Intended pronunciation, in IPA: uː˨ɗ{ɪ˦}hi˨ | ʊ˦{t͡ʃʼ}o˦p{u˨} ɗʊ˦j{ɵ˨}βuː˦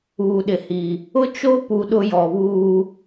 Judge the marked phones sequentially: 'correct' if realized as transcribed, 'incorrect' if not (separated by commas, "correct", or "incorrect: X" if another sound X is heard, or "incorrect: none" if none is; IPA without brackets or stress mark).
incorrect: ɪ˨, incorrect: t͡ʃ, correct, incorrect: ɔ˨